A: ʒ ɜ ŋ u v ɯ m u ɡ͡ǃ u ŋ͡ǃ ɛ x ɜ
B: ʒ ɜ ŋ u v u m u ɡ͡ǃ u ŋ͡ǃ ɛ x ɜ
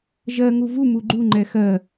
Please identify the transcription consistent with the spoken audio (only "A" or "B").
B